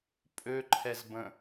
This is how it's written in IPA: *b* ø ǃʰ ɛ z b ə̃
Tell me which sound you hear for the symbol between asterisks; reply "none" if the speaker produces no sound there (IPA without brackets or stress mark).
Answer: pʼ